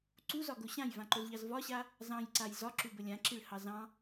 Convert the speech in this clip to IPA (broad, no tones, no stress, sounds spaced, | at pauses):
ǀ u z ɒ ɡ o ɕ ã j v ã ǃ o z ʎ ɑ z v ɒ ɕ a | z ɑ̃ j ǀ a j z ɒ ǁ u b ə lʲ ã ǁ i ɭ h ɑ z ɑ̃